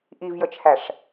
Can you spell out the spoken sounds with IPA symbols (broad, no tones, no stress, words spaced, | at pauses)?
ʔivjət͡ʃʰæʂ